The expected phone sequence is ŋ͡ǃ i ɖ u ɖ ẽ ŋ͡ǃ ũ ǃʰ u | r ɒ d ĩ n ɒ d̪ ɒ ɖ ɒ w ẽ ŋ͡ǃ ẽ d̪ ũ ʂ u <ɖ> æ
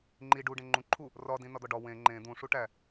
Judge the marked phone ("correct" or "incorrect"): incorrect